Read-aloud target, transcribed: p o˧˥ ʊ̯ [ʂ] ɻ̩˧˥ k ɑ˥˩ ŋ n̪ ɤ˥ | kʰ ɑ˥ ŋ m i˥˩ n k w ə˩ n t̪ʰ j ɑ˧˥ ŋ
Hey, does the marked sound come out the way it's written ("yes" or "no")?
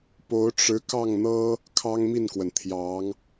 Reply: no